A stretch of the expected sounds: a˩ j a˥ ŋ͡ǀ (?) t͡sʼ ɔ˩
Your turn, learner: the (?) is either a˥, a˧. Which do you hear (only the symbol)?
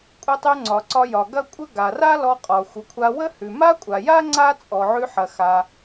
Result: a˥